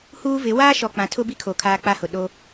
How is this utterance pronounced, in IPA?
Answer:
huː˦vɪ˨˦ waː˦ʃɔ˨ k͡pã˨tʰʊ˦bi˦kʰo˨ kʰaː˦k͡pa˦hʊ˨ ɗo˦

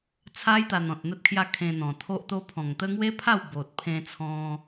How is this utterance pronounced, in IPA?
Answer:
t͡sʰa˦jt̪a˧ n̪ɔ̃˨t̚ n̪ə˦t̚kʰja˦ kʰẽ˧n̪ɔ̃˨˩t̪ʰo˦ʔt̪o˦ pʰɔ̃˨˩ŋt̪ə˦ ŋwe˦pʰa˥˧w bo˨t̚pʰẽ˧t͡sʰɔ̃˧

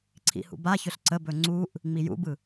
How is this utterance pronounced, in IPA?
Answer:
ǀʰḭhṵbaçɵɬ ǀəbɵ ŋ͡ǀuʔ | ŋ͡mijṵbɯ

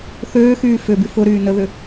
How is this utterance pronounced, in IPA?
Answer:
θøːxyː fʏby fʊɾyː nəðʏ

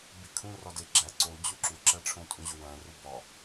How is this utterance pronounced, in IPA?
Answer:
bikʰũ rɒdeɡ͡ǁæ ǀo d͡ʑuǁuǁæ ʈ͡ʂʰõtʼũʑowæ̃ rubɒ

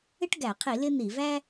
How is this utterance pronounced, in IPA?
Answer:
ɪ˥ʈɡæ˧˩˧qʰi˧˩˧ lɪ˥n̪i˧˩˧ væ˥

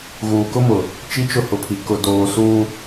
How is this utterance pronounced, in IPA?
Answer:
ɣuː˨kʊ˦mʊ˨ | t͡ʃi˦t͡ʃʊ˦hʊ˨pʰi˨ kʊ˨doː˨ suː˦

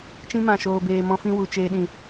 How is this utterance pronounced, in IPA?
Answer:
t͡ʃĩ˧mã˨ʃoː˨beː˨ mɔ̃˧fĩ˧wu˨ t͡ʃeː˨ɗĩ˨

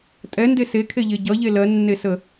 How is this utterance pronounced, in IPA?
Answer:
tʼɛnde sekʰeʎe ɟʌʎe lɜnːesə

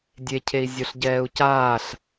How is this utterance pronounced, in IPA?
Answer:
dʲe cʰei̯zʲoɬɟɛːu̯caːɬ

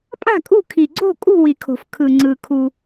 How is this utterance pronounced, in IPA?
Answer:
pʼa̤˥˨kʼṳ˥˨ kʰi˨ɡ͡ǀo̤˥˨ kʼṳ˥˨ wi˨kʰo̤˨f kʰɯ˨ŋ͡ǀɯ˨ kʰu˨

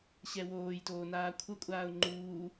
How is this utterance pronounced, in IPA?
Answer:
ɕɛwoːjtoː naːkʷʰʌkʷʼaːʊ̯ ŋ͡ǃuː

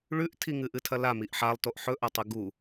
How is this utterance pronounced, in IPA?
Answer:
ɭʉʔtʰi ŋɨʔɨtʰɐla miʔħalˠtoʔ ħɵʔɐtˤɨ ɡu

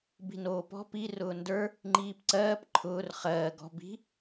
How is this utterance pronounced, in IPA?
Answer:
bi̤noːpɔ̤ pi rʊːndə˞ | ŋ͡ǃiːpǀɜːp ǃʰʊːr χɜː ɡɔ̤ bi̤

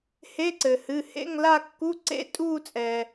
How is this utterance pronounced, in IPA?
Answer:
he˧˥˧ǀɘ˩hɨ˩˧˩hḛ˧˥˧ŋ la˥˧kːu˧˥˧ ǀḛ˥˧ tʼuː˥˧t͡sʼɛ˩

